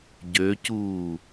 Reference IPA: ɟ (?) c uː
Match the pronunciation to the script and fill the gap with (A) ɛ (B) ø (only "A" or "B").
B